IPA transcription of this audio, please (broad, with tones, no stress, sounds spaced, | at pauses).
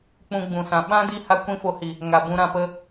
k͡p ũ˧ ɡ͡b ũ˨ s ã˨ ɓ ã˦ d i˧ h a˦ kʷ ĩ˦ f o˧ h i˨ | ŋ a˨ b ũ˧ ɾ ã˧ p ə˦